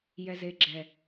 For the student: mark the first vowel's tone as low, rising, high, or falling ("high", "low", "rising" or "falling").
low